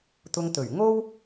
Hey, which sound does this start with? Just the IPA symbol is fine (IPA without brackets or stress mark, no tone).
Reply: t̪